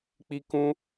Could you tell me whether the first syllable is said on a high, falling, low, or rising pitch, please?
high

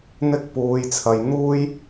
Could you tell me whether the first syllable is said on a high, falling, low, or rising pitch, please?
high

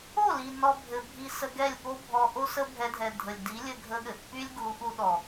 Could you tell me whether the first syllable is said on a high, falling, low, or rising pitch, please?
falling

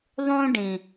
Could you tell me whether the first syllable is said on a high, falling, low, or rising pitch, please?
high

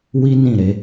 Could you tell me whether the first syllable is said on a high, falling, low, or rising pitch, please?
high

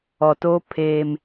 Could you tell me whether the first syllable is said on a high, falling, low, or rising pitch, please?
low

